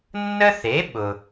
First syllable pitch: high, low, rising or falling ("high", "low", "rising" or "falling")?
high